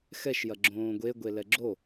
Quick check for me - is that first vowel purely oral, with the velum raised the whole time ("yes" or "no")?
yes